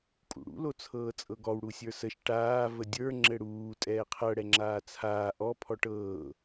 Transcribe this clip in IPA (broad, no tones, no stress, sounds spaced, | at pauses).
kʼ ṵ ɽ ṵ l o t͡sʰ ɤː t͡sʼ ɤ ɡ ɔ w ɽ u sʲ ə˞ s ə ʃ ʈ aː v ə dʲ ə˞ ŋ͡ǁ ɘ ɽ uː tʼ ɛː qʰ ɤ ɽ ɛ ŋ͡ǁ aː t͡sʰ aː ʔ ɔ pʰ ɔ ʈ ɤː